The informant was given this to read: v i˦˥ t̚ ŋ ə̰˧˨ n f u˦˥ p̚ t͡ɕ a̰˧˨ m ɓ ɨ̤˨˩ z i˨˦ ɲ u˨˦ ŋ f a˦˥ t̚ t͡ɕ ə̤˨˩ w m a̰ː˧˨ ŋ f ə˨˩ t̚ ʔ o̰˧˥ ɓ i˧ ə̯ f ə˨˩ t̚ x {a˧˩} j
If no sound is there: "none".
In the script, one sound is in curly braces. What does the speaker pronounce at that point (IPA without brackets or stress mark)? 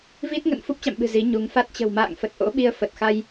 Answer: a˧